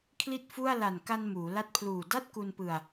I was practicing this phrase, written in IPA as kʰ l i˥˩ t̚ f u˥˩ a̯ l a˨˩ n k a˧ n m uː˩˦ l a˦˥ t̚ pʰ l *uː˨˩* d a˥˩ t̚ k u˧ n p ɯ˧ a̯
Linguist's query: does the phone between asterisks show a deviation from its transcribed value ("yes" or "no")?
no